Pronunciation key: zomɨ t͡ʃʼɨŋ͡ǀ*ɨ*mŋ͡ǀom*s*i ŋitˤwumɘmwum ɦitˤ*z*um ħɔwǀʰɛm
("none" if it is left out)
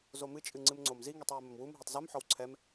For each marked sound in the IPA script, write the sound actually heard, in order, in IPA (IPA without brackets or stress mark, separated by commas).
ɨ, z, z